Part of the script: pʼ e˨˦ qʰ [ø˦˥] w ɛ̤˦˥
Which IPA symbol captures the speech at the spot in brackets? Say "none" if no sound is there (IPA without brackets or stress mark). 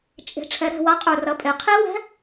e˦˥